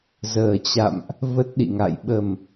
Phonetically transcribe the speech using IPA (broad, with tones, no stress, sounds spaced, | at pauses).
z əː˨˩ t͡ɕ a̰˧˨ m ʔ | v ə˦˥ t̚ ɗ ḭ˧˨ ŋ a̰˧˨ j ɓ ə˨˩ m